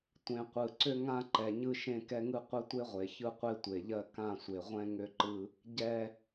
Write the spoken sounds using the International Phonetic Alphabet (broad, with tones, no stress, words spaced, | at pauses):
tʷẽ˨qʷɯ˨ǀʏ˦ ŋã˦ǃɛ˨ ɲɯ˦ʃẽ˦kɛ˦ŋɯ˦ qʷɛ˦tʷe˦ʁʷe˨ çɯ˦qʷe˦tʷe˨ʎɜ˦ kã˦˨sʷe˨ʁʷɛ̃˦ ŋʏ˦ǃɯ˦ | ɟɛ˦